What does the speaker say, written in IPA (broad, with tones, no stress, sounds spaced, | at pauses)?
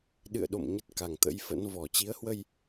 ɗ ɨ̰˧˨ ə̯ ɗ o̰˧˨ m ɲ ə˦˥ t̚ k a˨˩ ŋ t̪ ə̰˧˥ j f ə̰˧˥ n v ɔ˨˩ t͡ɕ i˨˦ ə̯ h w ə˧ j